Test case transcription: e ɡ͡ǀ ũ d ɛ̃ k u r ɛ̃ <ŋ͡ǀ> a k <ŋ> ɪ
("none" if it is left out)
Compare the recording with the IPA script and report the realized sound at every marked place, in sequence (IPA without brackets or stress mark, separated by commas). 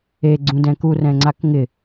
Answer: ŋ͡ǀ, ŋ